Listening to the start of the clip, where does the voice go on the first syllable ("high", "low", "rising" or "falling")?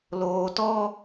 low